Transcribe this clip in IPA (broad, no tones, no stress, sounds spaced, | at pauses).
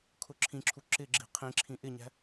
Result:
kʰ ʊ ǁʰ ĩ ǁʰ u ǁ ɪ ɡ͡ǁ i̤ qʰ ĩ ǁʰ ĩ ʔ ɪ ɲ æ̤